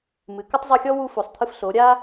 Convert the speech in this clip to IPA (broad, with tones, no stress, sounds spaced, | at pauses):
m ɨ˨˦ k ɐ˦ tˤ zˤ u˧ xʲ ɔ˦ w u˧ f o˨ sˤ t̪ʰ ɨ˧ f ɬ o˨˦ ɾʲ a˦